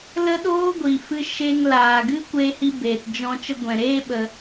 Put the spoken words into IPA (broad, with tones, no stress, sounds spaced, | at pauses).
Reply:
l ə˦ ɗ oː˦ ɡʷ i˨ f ɨ˦ ʃ e˧ ŋ l aː˨ ɡ ɨ˦ kʷ e˧ h i˧ b eː˨ t d͡ʒ ɔ̃˧ t͡ʃ ə˧ ɡʷ ɛ̃˨ ɾ eː˦ ɓ ə˧